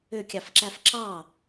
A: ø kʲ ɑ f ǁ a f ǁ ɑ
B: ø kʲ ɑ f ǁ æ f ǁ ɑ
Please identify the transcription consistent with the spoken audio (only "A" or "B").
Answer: B